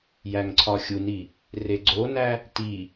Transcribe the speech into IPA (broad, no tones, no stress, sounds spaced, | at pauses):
j æ ŋ ǀʰ ɒ xʲ u n i | r e ɡ͡ǀ o n æ | t i